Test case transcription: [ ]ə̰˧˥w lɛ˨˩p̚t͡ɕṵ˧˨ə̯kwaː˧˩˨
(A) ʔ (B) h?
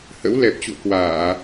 B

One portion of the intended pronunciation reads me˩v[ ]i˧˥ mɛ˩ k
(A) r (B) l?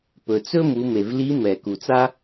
B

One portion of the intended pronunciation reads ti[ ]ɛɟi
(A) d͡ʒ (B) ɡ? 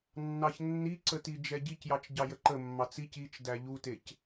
A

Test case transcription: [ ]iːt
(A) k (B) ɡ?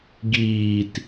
B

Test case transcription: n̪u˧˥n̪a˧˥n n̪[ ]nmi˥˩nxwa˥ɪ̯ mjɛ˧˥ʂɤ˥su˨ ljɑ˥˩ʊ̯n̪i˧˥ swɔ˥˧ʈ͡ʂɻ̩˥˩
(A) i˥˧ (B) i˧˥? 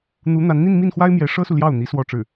A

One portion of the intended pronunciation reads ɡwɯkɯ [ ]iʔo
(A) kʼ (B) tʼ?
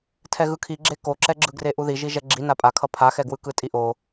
B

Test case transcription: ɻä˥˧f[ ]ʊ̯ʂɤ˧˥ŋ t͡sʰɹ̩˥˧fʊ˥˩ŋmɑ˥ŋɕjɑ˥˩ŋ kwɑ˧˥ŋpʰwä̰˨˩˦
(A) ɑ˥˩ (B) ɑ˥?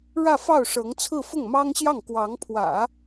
A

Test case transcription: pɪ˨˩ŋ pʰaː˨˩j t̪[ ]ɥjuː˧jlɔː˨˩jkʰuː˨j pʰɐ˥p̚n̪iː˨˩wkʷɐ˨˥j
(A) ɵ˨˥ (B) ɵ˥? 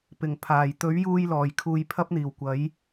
A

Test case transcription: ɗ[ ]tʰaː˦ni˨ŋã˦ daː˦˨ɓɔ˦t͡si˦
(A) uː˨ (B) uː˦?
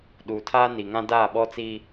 A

